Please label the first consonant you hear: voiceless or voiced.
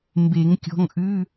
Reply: voiced